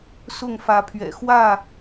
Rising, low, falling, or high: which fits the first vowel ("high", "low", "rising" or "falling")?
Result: falling